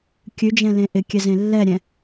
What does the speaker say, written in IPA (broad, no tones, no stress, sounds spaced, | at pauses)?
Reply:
kʲ ʉ d͡ʒ ɛ̃ l ẽ ʔ ɪ kʲ ɛ z ẽ lː ɛ ɾʲ ɛ̃